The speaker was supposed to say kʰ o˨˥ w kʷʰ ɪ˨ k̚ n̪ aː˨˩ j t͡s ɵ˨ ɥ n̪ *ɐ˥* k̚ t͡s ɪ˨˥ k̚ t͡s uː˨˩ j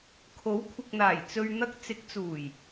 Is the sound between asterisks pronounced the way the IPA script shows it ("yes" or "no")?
no